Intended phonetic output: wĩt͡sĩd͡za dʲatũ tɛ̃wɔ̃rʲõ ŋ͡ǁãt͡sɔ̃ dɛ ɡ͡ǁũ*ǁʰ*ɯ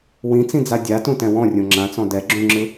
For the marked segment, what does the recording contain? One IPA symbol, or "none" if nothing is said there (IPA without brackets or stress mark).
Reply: ŋ͡ǁ